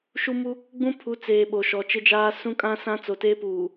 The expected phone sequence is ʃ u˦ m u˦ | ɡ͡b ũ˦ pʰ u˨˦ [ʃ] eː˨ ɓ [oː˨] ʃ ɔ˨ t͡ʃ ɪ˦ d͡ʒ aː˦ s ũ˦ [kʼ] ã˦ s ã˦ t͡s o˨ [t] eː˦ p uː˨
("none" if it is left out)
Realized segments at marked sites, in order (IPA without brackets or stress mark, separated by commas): t͡s, o˨, kʼ, t